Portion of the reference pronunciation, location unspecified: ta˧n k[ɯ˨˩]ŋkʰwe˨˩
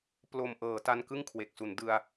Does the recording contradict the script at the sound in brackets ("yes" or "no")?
yes